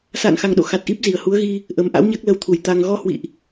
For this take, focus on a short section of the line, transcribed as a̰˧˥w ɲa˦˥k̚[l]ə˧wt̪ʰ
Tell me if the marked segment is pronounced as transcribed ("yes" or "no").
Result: yes